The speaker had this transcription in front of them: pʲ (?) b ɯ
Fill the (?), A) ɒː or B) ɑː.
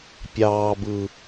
B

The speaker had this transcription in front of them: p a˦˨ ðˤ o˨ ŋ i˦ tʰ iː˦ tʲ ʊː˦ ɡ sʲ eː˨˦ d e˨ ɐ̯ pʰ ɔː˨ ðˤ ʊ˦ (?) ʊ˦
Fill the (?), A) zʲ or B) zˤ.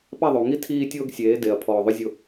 A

